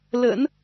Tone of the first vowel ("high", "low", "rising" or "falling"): low